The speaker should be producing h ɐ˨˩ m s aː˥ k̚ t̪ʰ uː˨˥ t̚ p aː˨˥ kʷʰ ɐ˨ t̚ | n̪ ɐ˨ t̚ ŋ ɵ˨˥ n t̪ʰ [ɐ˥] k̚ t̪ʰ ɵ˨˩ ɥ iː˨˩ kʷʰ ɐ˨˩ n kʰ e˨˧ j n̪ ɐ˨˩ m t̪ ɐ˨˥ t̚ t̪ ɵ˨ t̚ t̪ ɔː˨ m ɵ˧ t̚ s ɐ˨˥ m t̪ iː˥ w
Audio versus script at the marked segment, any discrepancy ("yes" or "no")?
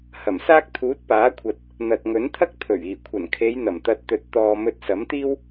no